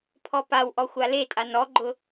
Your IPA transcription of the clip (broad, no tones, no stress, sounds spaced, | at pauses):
pʰ ɔ p a w ʔ ɔ xʷ a l e tʼ a n ɔ ɡ͡ǃ ʊ